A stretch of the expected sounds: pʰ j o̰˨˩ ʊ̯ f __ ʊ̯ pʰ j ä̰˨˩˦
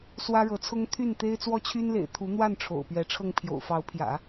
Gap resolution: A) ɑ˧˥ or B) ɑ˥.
A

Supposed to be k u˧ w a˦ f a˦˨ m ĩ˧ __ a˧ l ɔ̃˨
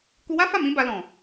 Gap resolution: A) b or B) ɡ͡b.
A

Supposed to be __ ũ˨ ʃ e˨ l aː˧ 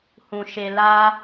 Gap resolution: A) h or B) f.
A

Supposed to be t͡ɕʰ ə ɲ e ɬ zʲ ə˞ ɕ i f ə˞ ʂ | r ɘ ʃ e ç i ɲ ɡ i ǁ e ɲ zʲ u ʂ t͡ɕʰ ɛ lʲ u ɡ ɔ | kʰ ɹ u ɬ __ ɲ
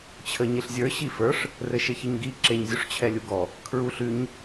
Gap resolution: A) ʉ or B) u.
A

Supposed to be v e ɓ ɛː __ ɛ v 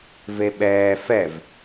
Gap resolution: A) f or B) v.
A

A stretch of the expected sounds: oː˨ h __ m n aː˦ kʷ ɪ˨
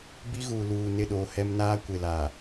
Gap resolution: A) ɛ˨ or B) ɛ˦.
B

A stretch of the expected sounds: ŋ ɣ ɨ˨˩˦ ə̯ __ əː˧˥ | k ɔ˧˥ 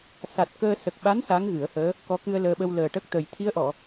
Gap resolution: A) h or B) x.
A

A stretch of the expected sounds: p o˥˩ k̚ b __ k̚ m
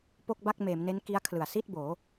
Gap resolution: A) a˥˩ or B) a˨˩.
A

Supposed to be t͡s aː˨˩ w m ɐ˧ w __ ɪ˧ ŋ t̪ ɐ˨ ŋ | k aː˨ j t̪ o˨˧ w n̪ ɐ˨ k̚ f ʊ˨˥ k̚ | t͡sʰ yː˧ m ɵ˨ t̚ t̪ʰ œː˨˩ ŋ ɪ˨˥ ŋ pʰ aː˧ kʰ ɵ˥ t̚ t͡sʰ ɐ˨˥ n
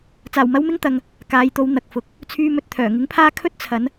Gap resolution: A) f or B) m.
B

